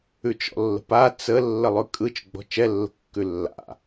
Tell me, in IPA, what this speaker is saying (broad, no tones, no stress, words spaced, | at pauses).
ʉt͡ʃɔ̰lːə̤pa t͡sə lːəlˠʉkʼɯt͡ʃ ɡ͡bɔ̤t͡ʃɛlːə̤ kːʉlːa̰